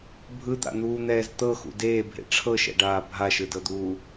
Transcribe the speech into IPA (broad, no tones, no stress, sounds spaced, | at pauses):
bʱ ɯ d̪ a̰ n̪ uː n̪ ɛː z t̪ ɤ x ṵ d eː bʱ ḛ ʈ͡ʂʰ ɤ ʃ ɛ̰ ɖ aː bʱ a ʃ ɯ d ɤ d̪ uː